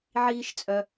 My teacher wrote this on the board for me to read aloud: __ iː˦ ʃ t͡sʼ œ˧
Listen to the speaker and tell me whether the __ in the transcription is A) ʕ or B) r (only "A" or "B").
A